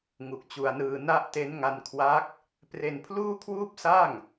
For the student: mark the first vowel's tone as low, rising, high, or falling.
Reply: low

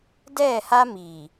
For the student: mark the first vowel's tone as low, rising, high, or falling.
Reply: falling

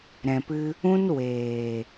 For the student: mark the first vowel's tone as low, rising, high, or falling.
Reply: low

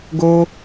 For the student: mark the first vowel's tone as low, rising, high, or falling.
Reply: high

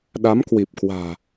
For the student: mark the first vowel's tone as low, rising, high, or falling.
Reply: rising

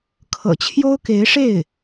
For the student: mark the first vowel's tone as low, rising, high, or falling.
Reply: low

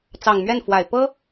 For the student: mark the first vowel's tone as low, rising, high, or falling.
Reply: low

